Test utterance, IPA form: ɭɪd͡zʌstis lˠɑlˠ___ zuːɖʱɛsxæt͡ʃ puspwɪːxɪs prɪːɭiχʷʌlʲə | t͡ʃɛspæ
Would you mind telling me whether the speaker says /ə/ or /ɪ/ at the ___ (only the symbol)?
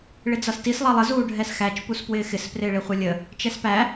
ə